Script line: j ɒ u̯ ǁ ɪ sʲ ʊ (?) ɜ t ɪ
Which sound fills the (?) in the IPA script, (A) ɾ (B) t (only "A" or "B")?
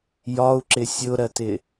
A